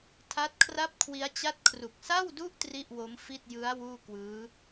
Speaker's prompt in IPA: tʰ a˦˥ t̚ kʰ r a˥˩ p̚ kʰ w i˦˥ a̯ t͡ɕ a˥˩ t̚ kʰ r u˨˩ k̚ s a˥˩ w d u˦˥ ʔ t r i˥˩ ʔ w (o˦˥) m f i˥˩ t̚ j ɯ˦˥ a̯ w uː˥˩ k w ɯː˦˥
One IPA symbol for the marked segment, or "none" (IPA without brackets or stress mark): o˦˥